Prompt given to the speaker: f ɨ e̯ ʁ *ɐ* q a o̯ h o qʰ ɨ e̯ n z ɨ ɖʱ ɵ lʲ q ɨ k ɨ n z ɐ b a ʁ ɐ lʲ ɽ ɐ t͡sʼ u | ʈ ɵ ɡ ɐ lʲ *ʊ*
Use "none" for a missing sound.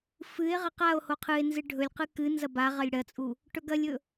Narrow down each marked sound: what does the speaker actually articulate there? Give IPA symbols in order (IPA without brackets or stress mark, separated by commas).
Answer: ɐ, ɵ